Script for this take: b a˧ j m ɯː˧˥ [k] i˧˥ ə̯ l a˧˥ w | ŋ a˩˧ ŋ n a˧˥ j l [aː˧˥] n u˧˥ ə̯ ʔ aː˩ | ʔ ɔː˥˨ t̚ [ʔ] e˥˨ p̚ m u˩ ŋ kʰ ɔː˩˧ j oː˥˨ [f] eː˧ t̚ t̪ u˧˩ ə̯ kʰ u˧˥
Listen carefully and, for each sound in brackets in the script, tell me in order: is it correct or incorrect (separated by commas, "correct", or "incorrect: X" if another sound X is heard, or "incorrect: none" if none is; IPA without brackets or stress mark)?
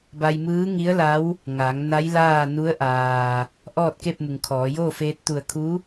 incorrect: ŋ, incorrect: aː˥˨, incorrect: k, correct